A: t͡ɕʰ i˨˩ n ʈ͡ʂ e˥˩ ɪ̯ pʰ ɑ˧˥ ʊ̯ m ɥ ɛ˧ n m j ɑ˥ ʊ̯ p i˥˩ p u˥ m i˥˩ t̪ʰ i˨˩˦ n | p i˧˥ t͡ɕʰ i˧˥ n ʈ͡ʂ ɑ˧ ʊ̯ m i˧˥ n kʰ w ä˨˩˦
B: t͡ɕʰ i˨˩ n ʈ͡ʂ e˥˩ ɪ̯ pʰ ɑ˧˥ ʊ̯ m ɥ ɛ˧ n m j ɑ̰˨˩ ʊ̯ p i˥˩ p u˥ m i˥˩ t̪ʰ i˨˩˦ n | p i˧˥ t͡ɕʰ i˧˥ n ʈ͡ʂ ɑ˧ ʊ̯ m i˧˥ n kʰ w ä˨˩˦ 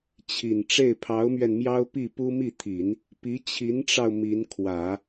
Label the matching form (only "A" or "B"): A